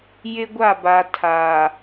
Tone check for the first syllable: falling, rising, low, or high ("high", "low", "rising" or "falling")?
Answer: high